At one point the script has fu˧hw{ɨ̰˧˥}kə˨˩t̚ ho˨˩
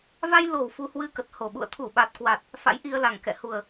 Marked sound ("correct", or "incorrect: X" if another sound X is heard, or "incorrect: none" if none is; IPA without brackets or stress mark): incorrect: ɨ˧